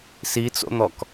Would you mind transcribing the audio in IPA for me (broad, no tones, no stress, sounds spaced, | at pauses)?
s i t͡s o̰ n̪ ɔ k